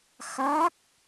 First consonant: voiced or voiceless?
voiceless